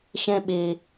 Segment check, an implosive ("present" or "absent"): present